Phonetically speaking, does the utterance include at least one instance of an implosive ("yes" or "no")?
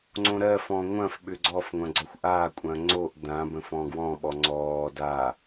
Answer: yes